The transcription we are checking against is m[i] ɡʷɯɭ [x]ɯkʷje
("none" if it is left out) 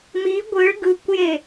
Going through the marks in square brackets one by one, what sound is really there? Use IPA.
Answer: i, ɡ

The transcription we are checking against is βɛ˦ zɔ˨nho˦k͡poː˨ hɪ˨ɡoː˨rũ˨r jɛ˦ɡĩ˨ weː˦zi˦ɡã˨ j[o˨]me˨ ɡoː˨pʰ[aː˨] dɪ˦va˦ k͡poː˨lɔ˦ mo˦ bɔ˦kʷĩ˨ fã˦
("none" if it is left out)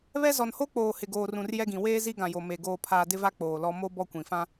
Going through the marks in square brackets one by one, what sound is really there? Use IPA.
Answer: o˨, aː˨

